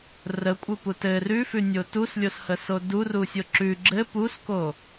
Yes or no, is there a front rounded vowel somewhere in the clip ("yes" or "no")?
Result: no